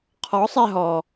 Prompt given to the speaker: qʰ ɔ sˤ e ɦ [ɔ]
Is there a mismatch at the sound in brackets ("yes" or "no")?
no